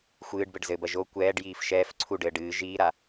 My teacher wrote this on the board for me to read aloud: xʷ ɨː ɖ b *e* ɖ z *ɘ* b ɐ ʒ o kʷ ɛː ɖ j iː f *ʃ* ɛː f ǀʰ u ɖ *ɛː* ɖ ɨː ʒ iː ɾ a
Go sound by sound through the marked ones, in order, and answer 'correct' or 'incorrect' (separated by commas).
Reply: incorrect, correct, correct, incorrect